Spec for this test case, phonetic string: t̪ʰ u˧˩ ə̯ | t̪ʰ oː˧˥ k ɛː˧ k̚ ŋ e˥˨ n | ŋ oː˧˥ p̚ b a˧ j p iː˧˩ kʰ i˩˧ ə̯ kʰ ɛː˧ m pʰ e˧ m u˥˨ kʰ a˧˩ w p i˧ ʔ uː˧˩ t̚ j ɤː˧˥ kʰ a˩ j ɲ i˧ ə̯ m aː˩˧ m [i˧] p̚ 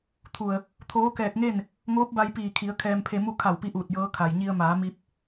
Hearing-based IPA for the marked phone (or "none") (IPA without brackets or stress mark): i˧